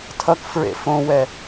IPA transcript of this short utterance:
tʰ ʌ k f ɹ ḛ f õ w ɛ

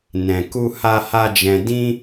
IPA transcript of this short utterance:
n ɛ̃˧ k u˦ h a˦ h a˦ d͡ʒ ɛ̃˧ d ĩ˦

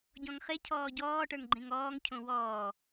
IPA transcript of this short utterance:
ɟ ɔ̃ ŋ χ e cʰ ɔː ɟ ɔː ʈ ə˞ ŋ ɡ͡ǃ ẽ ŋ ɔː ŋ cʰ õ w ɔː

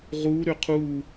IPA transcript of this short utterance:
ʁ u ɾ ʏ qʰ u

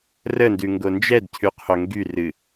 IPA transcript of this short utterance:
r ə n d ʉ ŋ ɡ o n d͡ʒ ɛ d cʰ ʉ qʰ o ŋ ɡ y r ɨ

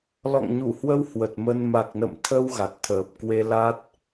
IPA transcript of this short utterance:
l ɔ̰˧˨ ŋ ɲ u˧˩ h w ə˧ w h w ə˨˩ t̚ m ə˧ n m a˨˩ k̚ n ə̰˧˨ m t̪ʰ ə˧ w ɣ a˨˩ t̚ t̪ʰ əː˨˩ p̚ k w e˧ l a˦˥ t̚

